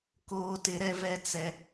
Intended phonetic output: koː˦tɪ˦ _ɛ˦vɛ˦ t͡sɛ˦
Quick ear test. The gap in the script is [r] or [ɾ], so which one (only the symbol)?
ɾ